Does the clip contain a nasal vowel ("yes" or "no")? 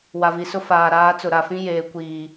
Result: yes